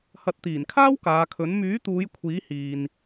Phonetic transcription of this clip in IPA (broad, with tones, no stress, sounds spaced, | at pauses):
h ɐ˨˥ t̚ t̪ iː˨˩ n kʰ aː˥ w k aː˨˧ kʰ ɵ˨˥ n m yː˨˥ t̪ uː˨˧ j kʷʰ iː˨˥ h iː˨ n